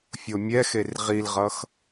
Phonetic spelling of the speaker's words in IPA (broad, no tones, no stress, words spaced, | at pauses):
fʲomʲɛxer ʁilʁʌx